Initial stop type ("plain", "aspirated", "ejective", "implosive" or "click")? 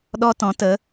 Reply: implosive